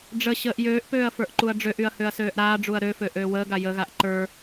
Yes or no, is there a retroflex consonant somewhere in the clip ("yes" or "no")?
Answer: yes